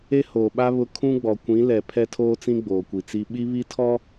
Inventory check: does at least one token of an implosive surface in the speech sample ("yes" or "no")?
yes